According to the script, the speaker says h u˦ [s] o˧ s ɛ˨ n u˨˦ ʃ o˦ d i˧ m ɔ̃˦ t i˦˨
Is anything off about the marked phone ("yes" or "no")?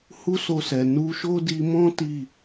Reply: no